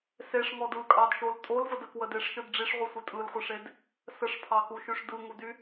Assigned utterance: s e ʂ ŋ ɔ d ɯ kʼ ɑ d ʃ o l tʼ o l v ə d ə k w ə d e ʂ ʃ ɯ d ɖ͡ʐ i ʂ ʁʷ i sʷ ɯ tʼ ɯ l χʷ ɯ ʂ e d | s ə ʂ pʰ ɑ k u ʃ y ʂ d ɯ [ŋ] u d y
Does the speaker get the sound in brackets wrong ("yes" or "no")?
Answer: no